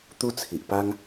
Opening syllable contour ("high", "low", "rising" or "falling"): high